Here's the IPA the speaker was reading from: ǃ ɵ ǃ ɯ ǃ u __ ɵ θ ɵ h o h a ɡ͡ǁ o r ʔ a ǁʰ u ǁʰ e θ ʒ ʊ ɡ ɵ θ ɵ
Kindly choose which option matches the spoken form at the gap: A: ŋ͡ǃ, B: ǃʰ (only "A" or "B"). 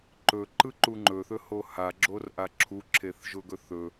A